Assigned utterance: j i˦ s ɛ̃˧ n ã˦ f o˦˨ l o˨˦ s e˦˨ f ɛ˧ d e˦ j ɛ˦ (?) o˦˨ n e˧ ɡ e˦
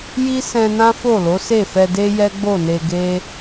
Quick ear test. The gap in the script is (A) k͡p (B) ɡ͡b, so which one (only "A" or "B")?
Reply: B